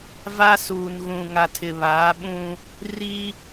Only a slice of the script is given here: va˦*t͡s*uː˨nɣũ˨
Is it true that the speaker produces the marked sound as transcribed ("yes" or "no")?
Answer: no